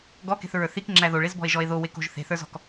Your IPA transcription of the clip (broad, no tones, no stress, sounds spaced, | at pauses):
ɡ ɔ k e̤ θ ɹ ə˞ θ i k ŋ͡ǁ æ ð o ɭ e z b ɔ̤ e̯ ʒ ɔ e̯ ð o w e k o̤ ʒ θ e̤ θ ə˞ z ɔ̤ k